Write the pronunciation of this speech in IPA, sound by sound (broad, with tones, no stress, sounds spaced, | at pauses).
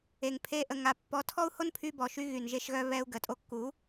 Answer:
e˨ ŋ pʰ e˧ ʔ ə˨ ŋ a˨ pː ɔ˨˦ tʰ ɔ˦ u̯ h o˦ n pʰ y˧ b ɔ˨ ʃ y˧ ɣ y˨ n ʒ e˧ ʃ ɣ œ˧ β ɛ˧ u̯ ɡ ə˨ tʼ o˧ kː u˨˦